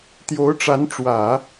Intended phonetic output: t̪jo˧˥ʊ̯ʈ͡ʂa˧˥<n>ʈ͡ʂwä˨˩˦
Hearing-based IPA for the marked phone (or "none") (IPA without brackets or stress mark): n